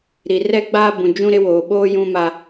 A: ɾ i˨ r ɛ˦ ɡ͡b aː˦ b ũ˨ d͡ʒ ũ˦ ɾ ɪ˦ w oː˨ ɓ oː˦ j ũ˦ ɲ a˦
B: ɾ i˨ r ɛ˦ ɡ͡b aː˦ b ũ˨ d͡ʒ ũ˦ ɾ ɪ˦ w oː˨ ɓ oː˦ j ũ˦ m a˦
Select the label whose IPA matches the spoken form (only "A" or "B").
B